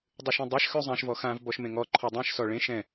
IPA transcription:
dˤ ʉ ʃ ẽ dˤ a ʃ x ʉ zˤ ã ʃ v ɔ x ã v b ɔ ʃ m ẽ ŋ ɔ ǃʰ ɔ dˤ ɛ̃ ʃ s ɔ ɭ ẽ ʃ ɛ̃

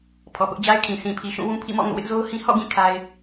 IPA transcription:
pʰ ɔ˨ p ʊ˦ ʔ d͡ʑ a˦ ɪ̯ kʰ ĩ˨ sʰ ĩ˨ pʰ i˨ ʃ ũ˦˨ w ũ˦ pʰ ḭ˦˨ m ɔ̰˦˨ ŋ o̰˦˨ w ɪ˦ ʔ z o˦ ʊ̯ h ĩ˦ h ɔ̰˦˨ ɡ ĩ˦˨ kʰ a˦ ɪ̯

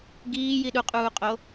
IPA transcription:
ɡ iː j i ɗ u qʼ uː qʼ o

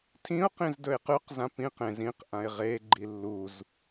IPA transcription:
tʰ ĩ ʊ̯ q ĩ z d ɵ ɪ̯ q ʉ q z ã p ĩ q ẽ z ĩ q ʔ ã ɪ̯ ʁ e ɡ͡ǃ i lː u z

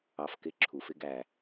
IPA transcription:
ɑ˧ f k ɪ˦˨ ǁʰ u˨ f ɪ˦ ɡ æ˨

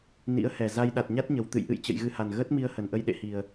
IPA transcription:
n ḭ˧˥ ə̯ h ɛ˨˩ z a˧ j ɗ a˨˩ t̚ ɲ a˦˥ t̚ ɲ ə˨˩ w t̪ ɨ̰˧˨ j ʔ ɨ̰˧˨ j t͡ɕ ə̰˧˨ j ɣ ɨ˧ h a˨˩ n ɣ əː˦˥ t̚ m i˧ ə̯ h ə˨˩ n ʔ ə˧ j ɗ ḛ˧˨ h i˨˩ ə̯

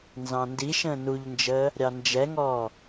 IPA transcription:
n z ɑ̃ n d i ʃ ə̃ː n u ʎ n d͡ʒ əː | ɾʲ ɑ n d͡ʒ ɛ ŋ ɔː

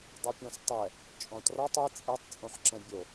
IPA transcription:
dˤ u pʲ ɔ̃ s tˤ ɛ | t͡ʃʼ ɔ̃ t r ɔ tˤ i t͡sʼ ɛ tˤ t͡sʼ õ ħ ǁ ɛ̃ bʲ o

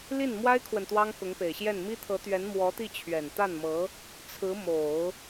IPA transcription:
l i˥˩ n m w a˥ ɪ̯ kʰ w ə˨ n t̪ w ɑ˥ ŋ k ʊ˧˥ ŋ p e˨˩ ɪ̯ ɕ j ɛ˥˩ n m i˥ t̪ʰ ɤ˧˥ t̪ ɥ ɛ˧˥ n m w ɔ˧˥ t̪ i˥˩ t͡ɕʰ ɥ ɛ˨˩ n t̪ a˥˩ n m ɤ˧˥ | t͡sʰ ɹ̩˧˥ m o˨˩˦ ʊ̯

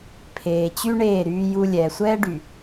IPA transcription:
pʰ eː˨ t͡ɕ y˦ ɳ eː˦˨ ɾ yː˦ j u˦ lʲ ɛː˨ sʷ ɛː˦ ɖ y˨

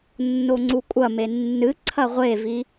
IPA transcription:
nː o ŋ͡ǀ u kʷʼ ɐ m e nː ɨ ǀʰ ɐ ʁʷ e v i

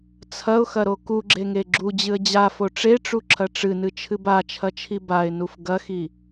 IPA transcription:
t͡sʰ ɐ ʊ̯ x ɐ ɾ o k u ɡ͡ǁ e ŋ e ɡ͡ǁ u d͡ʑ ɨ ə̯ d͡ʑ a f o ʈ͡ʂ e ʈ͡ʂ u ǁʰ ɐ ʈ͡ʂ ɨ n ɨ t͡ʃʰ ɨ b a t͡ʃʰ ɐ t͡ʃʰ i b a ɪ̯ n u f ɡ ɐ x i

